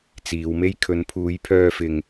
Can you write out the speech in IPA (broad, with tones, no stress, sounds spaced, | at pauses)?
t͡s iː˨˧ w m e˥ j kʰ ɵ˨˧ n pʰ uː˨˧ j pʰ œː˧ f ɪ˧ ŋ